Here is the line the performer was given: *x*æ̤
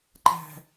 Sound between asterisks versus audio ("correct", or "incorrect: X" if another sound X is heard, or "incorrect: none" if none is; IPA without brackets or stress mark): incorrect: ǃ